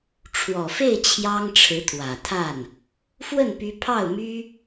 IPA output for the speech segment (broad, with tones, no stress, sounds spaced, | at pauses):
ʈ͡ʂʰ w ɔ˨˩ f e˥˩ ɪ̯ t͡ɕʰ j ɑ˥ ŋ ʈ͡ʂʰ ɻ̩˧˥ t̪ʰ w ä˨˩ t̪ʰ a˥˩ n | f w ə˥˩ n p y˧˥ pʰ ɑ˥˩ ʊ̯ m y˥